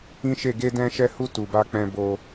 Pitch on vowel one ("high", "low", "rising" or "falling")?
high